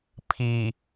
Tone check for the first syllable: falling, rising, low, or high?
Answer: low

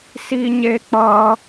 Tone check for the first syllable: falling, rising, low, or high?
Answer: high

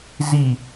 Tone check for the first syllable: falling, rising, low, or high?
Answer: falling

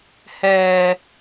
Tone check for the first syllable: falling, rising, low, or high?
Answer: high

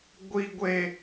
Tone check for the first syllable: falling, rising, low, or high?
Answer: high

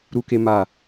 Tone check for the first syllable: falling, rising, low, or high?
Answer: high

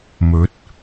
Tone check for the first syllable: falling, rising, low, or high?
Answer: rising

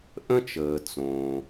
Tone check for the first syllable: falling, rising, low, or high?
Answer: high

